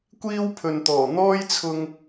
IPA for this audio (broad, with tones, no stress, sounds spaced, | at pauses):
kʷ iː˥ w pʰ ɵ˨ n t̪ ɔː˨˩ n̪ ɔː˥ j t͡sʰ ʊ˧ ŋ